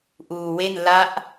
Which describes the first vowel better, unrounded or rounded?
rounded